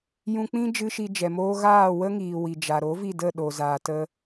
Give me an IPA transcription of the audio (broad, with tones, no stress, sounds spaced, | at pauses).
j ũ˧ k͡p ĩ˦ d͡ʒ ɨ˦ ʃ i˧ d͡ʒ ɛ˨ m oː˦ ɣ aː˦˨ w ə˦ ŋ iː˨ w i˨ d͡ʒ a˨ ɾ o˨˦ v i˦˨ d ə˦˨ ɗ o˨ z aː˨ t ə˧